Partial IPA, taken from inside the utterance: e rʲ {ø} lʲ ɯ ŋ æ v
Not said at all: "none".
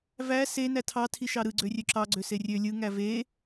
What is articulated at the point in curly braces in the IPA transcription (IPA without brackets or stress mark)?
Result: ø